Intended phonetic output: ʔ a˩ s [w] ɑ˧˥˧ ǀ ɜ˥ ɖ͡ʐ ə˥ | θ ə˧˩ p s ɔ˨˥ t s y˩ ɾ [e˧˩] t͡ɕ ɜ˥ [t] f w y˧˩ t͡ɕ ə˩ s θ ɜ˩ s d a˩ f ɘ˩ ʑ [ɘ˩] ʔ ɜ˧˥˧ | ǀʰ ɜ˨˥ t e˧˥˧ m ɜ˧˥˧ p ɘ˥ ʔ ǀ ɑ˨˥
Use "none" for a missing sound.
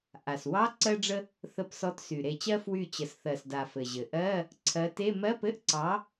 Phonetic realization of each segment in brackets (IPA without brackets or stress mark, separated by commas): w, e˧˩, none, ɘ˩